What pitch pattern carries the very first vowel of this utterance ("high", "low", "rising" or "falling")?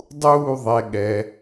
falling